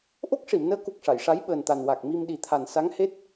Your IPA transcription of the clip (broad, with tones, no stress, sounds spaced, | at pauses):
ʔ o˦˥ k̚ ʂ i˨˩˨ m n əː˧˥ k u˨˩ k̚ ʂ a˨˩˨ j ʂ a˧˥ j ɓ əː˨˩ n t̪ a˨˩ n w a˨˩ k̚ m i˧ m ɗ i˨˩˦ t̪ʰ a˨˩ n s a˧˥ ŋ h e˦˥ t̚